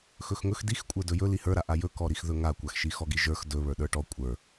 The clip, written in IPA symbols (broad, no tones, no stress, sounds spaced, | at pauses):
x ɵ x ŋ ɵ x d i x kʷʼ ə˞ d ɵ j ɵ l i h ə˞ ɾ a ʔ a j ɵ k ɔ ɾ i x ð ɵ ŋ a kʷ a x ʃ i x ɔ ɡ i ʒ ə˞ x d ɵ β ə˞ ɗ ə˞ ʈ ɔ kʷʼ ə˞